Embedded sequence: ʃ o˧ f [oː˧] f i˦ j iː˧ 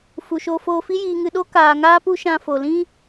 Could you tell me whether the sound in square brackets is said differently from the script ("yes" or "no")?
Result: no